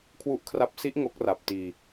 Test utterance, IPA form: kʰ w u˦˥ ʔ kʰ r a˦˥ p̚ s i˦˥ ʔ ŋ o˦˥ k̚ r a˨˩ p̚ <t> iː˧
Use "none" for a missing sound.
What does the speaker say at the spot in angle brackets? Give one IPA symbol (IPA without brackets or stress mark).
t